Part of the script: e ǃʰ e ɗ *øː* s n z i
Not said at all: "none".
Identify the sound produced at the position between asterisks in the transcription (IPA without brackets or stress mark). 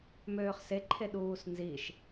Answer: uː